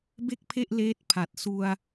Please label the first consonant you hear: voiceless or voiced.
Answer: voiced